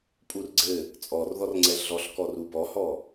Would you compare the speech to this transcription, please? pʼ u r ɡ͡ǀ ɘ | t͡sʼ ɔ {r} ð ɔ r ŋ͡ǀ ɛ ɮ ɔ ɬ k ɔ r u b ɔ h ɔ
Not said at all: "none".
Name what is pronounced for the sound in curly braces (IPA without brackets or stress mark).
r